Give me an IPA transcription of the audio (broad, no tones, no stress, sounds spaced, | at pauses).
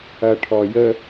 ɐ ʈʰ ɔ j ə